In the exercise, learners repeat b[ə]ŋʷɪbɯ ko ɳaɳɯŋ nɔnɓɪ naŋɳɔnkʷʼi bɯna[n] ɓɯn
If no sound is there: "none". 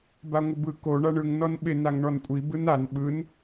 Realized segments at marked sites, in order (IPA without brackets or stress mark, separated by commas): a, n